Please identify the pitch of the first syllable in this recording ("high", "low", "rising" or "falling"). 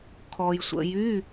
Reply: low